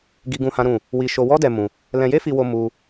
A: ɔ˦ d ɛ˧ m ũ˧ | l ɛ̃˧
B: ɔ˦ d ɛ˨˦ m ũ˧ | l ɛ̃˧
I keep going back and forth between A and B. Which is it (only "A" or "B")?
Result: A